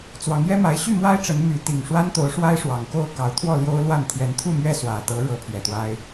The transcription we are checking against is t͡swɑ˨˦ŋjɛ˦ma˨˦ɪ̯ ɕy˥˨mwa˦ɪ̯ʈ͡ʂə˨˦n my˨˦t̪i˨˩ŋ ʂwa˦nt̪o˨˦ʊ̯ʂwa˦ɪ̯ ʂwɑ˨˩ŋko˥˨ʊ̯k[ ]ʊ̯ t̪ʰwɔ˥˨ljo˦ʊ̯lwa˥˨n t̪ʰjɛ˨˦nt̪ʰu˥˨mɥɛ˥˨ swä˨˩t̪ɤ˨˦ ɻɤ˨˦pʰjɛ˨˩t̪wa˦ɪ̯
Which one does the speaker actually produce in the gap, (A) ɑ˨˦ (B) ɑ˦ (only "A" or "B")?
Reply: A